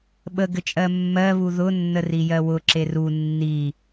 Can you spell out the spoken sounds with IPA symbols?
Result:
ɓəɡɘt͡ʃʼɜ mːɜβu ðʊ nːərijɜwʊ ǁeru nːi

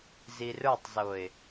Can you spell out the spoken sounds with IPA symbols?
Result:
zirə˞tˤzoɪ̯

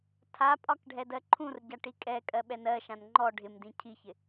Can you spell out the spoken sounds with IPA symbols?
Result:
tʰapʼɒk ɖʱɛdɜǃʰũrɟa ʈikʼɛkʼɜ ɓɛnɜʃãn ŋ͡ǃɔ ɖʱɪmdĩ cʰiçɪ

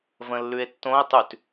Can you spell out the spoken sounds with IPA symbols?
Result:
və̃lːʉe̯tːõe̯ tˤʉt

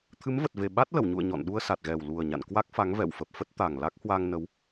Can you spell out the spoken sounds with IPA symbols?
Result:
t̪ʰɨ˨˦mvə˨˩t̚ve˨˩ ɓa˦˥t̚lə˧˩wɲṵ˧˨ə̯ ɲɔ̰˧˨n ɗu˧ə̯sa˨˩t̚ɣɛ˨˩wlu˨˩ə̯ ɲa̰˧˨nkwa˦˥k̚fa˨˦ŋ vɛ̰˧˨wfə˨˩p̚fə˦˥t̚ t̪a˨˩ŋ la˦˥k̚hwa˧ŋnə˨˦w

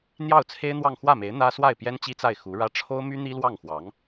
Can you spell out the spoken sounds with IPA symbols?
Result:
n̪jɑ˥˩ʊ̯t͡sʰe˥ɪ̯n̪wɑ˥˧ŋ xwä˥˩me˧˥ɪ̯ n̪ä˥ swa˥˩ɪ̯pjɛ˥nt͡ɕi˥t͡sa˥˩ɪ̯ xu˧˥ɻä˥ ʈ͡ʂʰo˥ʊ̯my˥ n̪i˥lwɑ˥˩ŋxwɑ˧˥ŋ

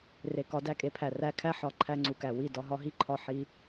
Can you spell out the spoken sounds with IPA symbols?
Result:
re˨kɒ˨˦ dæ˧kʼe˧pʰæ˨ ræ˧kʰæ˦ ħɒ˨ ǃʰæ˧ŋ͡ǀu˨kæ˨ wi˦˨ dɒ˧ɦɒ˦ɦi˦ǃʰɒ˧ ħi˧

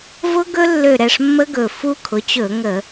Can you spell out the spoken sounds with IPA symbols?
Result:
vʊ˦˥ ɡɵ˦˥lːø˧˩ɾɛ˥˩ʂmːə˦˥ ɡɵ˧˩ fu˦˥kʰʊ˩˥t͡ɕɵ˧˩˧ŋə˧˩˧

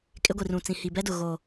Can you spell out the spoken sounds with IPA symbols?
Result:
kʼɪ˦ɡʷi˨rũ˨t͡sĩ˨ hi˨bɛ˦dʊ˨ ɣo˨

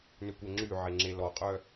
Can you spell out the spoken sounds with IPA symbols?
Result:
nʏkʷɛŋ͡ǁyʕe ŋ͡ǁelɔqʼœ

